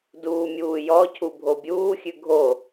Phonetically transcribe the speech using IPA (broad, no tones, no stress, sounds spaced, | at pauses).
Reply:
d uː mʲ uː j ɔ cʰ u bʱ o bʲ uː xʲ ʉ ɡʱ o